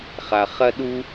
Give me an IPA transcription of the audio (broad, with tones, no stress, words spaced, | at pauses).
χa˩χɐ˧ ɗu˥